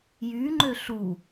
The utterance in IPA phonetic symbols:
jy ŋ͡ǃøɬu

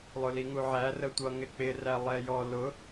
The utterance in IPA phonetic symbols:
lˠʊliŋuʕæ rətʷʌ ŋɪk͡pɪ rælˠɛjɔ lʊ

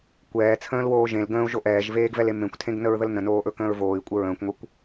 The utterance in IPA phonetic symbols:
kʷɛːt͡sʰə̃ːlwoː ʒẽl ɡə̃ːu̯ʒo ʔɛːʒveːɡvɛle mẽkʷtʰẽɡnəɹðəl nə̃noːʔɵkə̃ːɹ voːi̯kʷʼə ɹə̃ːkʷŋʷɛkʷ

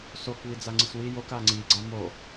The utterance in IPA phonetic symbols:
sok βid͡zaŋ͡ǀiswi jok aŋ͡ǀi ɡ͡ǀamo

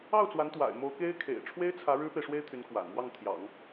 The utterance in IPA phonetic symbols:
ɑ˥˩ʊ̯t͡swa˧˥nt̪wa̰˨˩ɪ̯ mo˧˥ʊ̯ke˥ɪ̯kʰḛ˨˩ɪ̯ ʈ͡ʂʰwe˥ɪ̯t͡sʰä˧˥ ɻɻ̩˥pe˨ɪ̯ʂwe˥ɪ̯t̪ʰy˧˥n kwa̰˨˩n mwɑ˥˩ŋt̪ʰjɑ̰˨˩˦ŋ

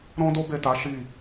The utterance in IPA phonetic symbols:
ɾɔ̃˦ do˦be˦˨ta˨˦ ʃi˦˨

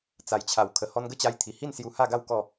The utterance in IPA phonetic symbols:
t͡sa˨˩jt͡ɕʰa˨˩w kʰə˨˩hɔ˧nɡə˥˧t͡ɕa˧j t̪ʰi˨˩hi˥˧n sju˧ha˥˧ɡa˥˧w kɔ˥˧

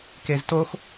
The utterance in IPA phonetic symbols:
keztox

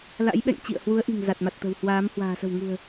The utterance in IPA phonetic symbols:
la̰˧˥jɓɛ̰˧˨ŋt͡ɕḭ˧˨ə̯ hwu˨˦ə̯ʔi̤˨˩ŋ za˨˩t̚ma˨˩t̚t̪ə̤˨˩w hwaː˨˦m hwa̤ː˨˩sə̤˨˩wŋṳ˨˩ə̯

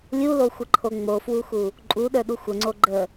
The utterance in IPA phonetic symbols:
lʲuloxʷəǃʰo ŋ͡mofwuxu | ǃʼuɗə˞ɗu xʷəŋ͡ǀo ɡ͡ǃə

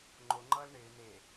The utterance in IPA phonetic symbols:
ŋ͡ǃo ŋ͡ǃʌːlɳɪː ne

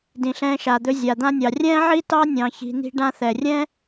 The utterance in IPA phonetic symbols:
dĩ˨ɬɛ̃ː˧ʃa˨d̪ɵ˧ zʲa˨d̪ã˧nʲɑ˨ rʲɛ̃ː˦ʕi˦tɑ˦ nʲɑ̃˧çi̤˧ n̪i̤˧ɖã˧θɛ˨rʲɛ̃˦

